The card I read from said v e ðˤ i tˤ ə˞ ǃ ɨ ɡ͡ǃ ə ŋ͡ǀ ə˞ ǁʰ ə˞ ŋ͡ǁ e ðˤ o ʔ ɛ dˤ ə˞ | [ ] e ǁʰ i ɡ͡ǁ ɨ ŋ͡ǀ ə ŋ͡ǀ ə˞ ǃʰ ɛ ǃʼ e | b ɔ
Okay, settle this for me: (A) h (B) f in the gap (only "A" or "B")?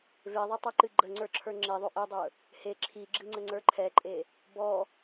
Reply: A